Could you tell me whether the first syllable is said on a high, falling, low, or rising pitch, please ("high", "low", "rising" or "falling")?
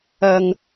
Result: low